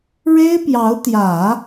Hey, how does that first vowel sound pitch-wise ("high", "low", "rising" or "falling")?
high